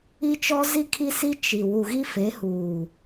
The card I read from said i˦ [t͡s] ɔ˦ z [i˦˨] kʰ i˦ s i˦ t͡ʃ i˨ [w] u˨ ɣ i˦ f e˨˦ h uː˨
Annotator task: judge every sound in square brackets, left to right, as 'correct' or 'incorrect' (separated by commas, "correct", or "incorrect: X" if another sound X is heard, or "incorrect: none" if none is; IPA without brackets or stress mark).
incorrect: t͡ʃ, correct, correct